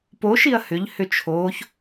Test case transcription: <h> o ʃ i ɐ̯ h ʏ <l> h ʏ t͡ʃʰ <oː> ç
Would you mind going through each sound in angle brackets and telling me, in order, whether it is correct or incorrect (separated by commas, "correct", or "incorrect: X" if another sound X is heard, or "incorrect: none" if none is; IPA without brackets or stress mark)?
incorrect: p, incorrect: ʎ, correct